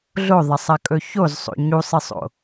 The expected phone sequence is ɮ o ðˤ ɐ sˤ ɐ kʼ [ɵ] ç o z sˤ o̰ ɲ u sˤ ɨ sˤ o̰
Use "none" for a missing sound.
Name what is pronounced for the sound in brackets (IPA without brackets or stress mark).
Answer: ɵ